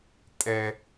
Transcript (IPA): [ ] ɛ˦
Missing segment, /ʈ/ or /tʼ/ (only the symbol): tʼ